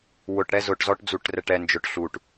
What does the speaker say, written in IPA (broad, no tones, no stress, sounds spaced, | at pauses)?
w ʊ ʈ ɽ ɛ z ʊ ʈ z ɔ ʈ d͡z u ʈ r ɛ ʈ ɛ n d͡ʒ ʊ ʈ ɬ u ʈ